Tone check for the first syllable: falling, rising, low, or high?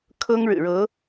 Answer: high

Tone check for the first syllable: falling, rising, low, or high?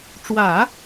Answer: low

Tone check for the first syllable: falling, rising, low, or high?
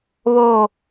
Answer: falling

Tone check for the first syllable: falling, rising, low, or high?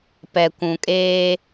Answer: low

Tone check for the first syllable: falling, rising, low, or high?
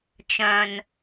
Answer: low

